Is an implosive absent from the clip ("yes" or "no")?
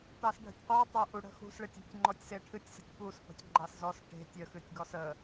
yes